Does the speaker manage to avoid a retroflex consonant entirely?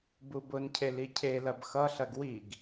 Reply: yes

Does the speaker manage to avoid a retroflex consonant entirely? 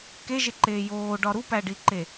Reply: no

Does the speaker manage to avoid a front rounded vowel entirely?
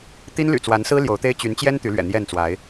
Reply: no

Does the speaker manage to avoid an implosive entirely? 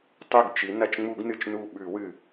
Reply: no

